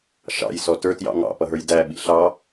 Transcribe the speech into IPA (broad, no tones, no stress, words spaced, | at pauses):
ʃɑ̰jsɔ tə˞tjɑ̰ ŋɑ̰pʌɦə˞j dæɓḭ ɬɑ